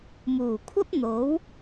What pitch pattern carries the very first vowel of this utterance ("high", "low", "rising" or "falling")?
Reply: low